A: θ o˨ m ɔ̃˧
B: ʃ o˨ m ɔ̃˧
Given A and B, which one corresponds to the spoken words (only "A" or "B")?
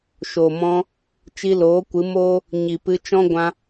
B